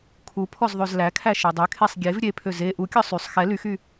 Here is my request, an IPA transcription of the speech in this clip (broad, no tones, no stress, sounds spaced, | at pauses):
kʰ u pʰ ɔ z ðˤ ø z l æ kʰ æ ʃ e dˤ ø kʰ e sˤ ɡʲ e v ɾʲ e pʰ ø z e ʔ u kʲ ɔ sˤ y sˤ x ɛ l y x y